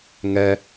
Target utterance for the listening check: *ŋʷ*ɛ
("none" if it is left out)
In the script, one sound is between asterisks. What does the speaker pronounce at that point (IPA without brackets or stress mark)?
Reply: ŋ